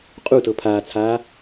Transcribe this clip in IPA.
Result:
qʼ u t ɤ pʰ aː t͡sʰ aː

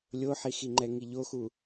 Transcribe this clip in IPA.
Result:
lʲ o ħ i x i ŋ͡ǃ ɛ ŋ i ʎ o x u

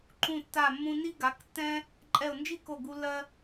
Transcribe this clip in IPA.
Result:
ǃ ũ˧˩ tː a˧˩ mː ũ˧ n i˥ ɡ a˩˥ k tː ɛ̃˥ | ǃʼ ɛ˧˩ ʊ̯ n d͡ʒ i˥ k o˧˩ ɡ u˧ lː ɜ˧

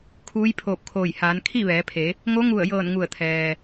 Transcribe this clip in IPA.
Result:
kʰ uː˧˥ j pʰ oː˧˩ p̚ kʰ oː˧˩ j h aː˩˧ n kʰ i˥˨ ʋ ɛː˩˧ pʰ e˩˧ | ŋ o˧˥ ŋ u˧˩ ə̯ j ɤː˧˩ n ŋ u˧˩ ə̯ t̪ʰ ɛː˩

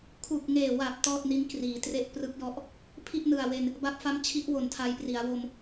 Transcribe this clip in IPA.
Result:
kʰ u˨˩ k̚ ŋ eː˨˩ w a˨˩ p̚ t ɔː˥˩ t̚ n i˦˥ n k r iː˩˦ t r e˦˥ ʔ p r ɯ˦˥ k̚ j ɔ˦˥ ʔ | pʰ i˥˩ ʔ n ɯ˨˩ a̯ w e˧ n | b a˦˥ p̚ f a˦˥ m t͡ɕʰ i˦˥ ʔ w o˨˩ n tʰ a˧ j p r i˩˦ a̯ w o˧ m

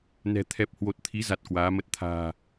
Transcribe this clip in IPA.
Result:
n ɛ̤˨˩ t̪ʰ ɛ˨˩ p̚ h w o˨˩ t̚ t̪ʰ i˨˦ z a˨˩ t̚ k w aː˨˦ m ə˦˥ t̚ t̪ʰ a̤ː˨˩

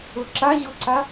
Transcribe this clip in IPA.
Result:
ʊ ǁ a ʑ ʊ ǀ a

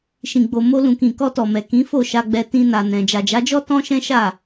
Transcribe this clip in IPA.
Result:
ʃ ĩ˨ ɡ͡b o˨ m o˧ l ũ˨ k ĩ˨ k ɔ˧ t ɔ˨ m ɛ˨ k ĩ˨˦ f o˦˨ ʃ a˧ ɡ͡b ɛ˧ t ĩ˧ n a˨ n ɛ̃˨ d͡ʒ a˨ d͡ʒ a˨˦ d͡ʒ ɔ˦ t ɔ̃˦ ʃ ɛ̃˦ ʃ a˦˨

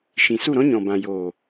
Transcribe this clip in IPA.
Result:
ʃ ĩ˨ s u˦˨ ɾ ɔ̃˦ ɲ ɔ̃˨ b ã˨ j oː˨

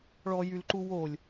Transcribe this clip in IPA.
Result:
ɭ ɔ j y l ǃ u w o lʲ

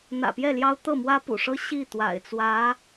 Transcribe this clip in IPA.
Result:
n̪ ä̰˨˩ p j ɛ˥˩ l j ɑ˥ ʊ̯ t̪ ɤ˥˩ m w ä˥ p ṵ˨˩ ʂ ɤ˥ ɕ i˥˩ t̪ w a̰˨˩ ɪ̯ t͡s w ä˧˥

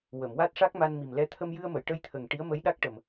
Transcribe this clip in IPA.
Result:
w ə˨˩˨ m w a˦˥ t̚ ʂ a˦˥ k̚ m a˧ n m i˨˩ m l ɛ˧ t̪ʰ ə˧ m j ɨ˧ ə̯ m ə˨˩˨ j ʈ ə˧ j t̪ʰ ə˨˩ ŋ ʈ i˧˥ ə̯ m ə˧˥ j ɗ a˦˥ k̚ ʈ ə˨˩ m

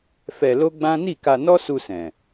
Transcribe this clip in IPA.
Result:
f ɛ˧ l o˦ ɡ͡b ã˦ n i˦˨ k a˧ n ɔ˦ s u˧ s ɛ̃˨

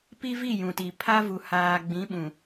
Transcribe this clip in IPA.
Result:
p i˦ v i˦˨ j ũ˨ t i˨ pʰ a˦ v u˨ h aː˨ ɡ͡b ĩ˨˦ ɓ ũ˨

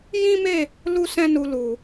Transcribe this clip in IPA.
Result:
j ĩ˦ m e˦˨ | l u˦ s ɛ̃˦ n u˧ l u˨

